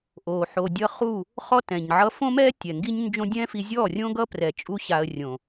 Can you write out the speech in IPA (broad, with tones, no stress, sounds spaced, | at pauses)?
ʔ o˨ ħ o˨ dʲ ʌ˧ χ u˦˨ | χ ɔ˦ t ɛ̃˨ ɲ ʕ ʌ˧ f õ˦ m ɛ˦ tʲ ɛ˨ ŋ ɡ i˦ ɲ n d͡ʒ õ˦ dʲ ɛ̃˦ f i˧ zʲ ɔ˦˨ rʲ õ˦ ɡ ʌ˦ p r ɛ˨ t͡ʃʼ u˦ ɕ a˧ ə̯ rʲ õ˨